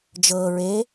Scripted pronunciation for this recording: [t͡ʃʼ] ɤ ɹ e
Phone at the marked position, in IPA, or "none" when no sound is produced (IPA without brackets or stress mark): d͡ʒ